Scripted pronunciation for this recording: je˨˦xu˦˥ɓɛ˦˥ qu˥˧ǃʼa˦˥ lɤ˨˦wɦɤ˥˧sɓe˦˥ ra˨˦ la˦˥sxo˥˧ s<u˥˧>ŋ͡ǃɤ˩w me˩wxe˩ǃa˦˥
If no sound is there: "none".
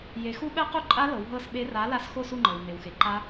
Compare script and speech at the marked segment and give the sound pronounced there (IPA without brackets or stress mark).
u˥˧